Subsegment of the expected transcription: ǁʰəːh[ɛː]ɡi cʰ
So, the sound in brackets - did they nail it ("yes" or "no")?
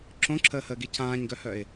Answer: no